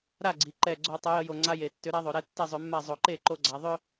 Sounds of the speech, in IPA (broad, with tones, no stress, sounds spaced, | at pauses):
ɾ a˥˩ ɡ͡ǀ i˩˧ ǃ ɛ˨˩ ɡ͡ǀ o˧˩˧ tˤ ə˩˧ j ə˧˥ j o˨˩ ŋ͡ǀ a˥˧ j e˨˩ tː ʏ˧˥ ɾ a˧˥ ðˤ o˩˧ ɾ ɛ˧˥ tː ɛ˥˩ zˤ ʏ˧˩˧ mː a˥˩ zˤ o˨˩ ǃ e˥˩ ǃ o˧˥ ɡ͡ǀ a˩˧ ðˤ ʏ˥˧